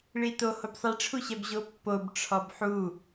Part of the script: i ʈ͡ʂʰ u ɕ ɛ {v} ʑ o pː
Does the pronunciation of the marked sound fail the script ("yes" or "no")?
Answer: yes